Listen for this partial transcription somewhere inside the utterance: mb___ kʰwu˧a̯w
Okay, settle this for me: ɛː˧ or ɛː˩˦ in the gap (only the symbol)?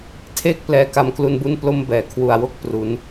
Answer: ɛː˩˦